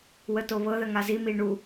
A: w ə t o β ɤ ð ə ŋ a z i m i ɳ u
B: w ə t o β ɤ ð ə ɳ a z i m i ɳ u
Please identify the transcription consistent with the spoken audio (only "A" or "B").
A